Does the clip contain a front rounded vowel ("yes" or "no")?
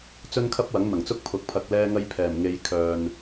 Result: yes